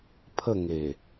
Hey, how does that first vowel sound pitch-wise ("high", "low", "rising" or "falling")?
falling